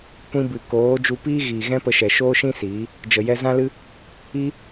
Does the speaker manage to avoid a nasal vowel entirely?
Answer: no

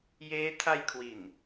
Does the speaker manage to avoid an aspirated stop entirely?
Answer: no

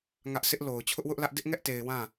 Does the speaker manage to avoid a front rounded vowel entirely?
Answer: yes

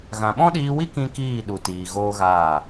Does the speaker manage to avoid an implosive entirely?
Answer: no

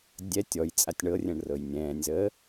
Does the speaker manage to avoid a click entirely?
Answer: yes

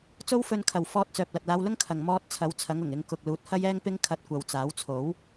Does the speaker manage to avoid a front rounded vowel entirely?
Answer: no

